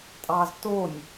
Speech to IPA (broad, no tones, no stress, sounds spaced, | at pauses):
tʼ ɑ z t o nʲ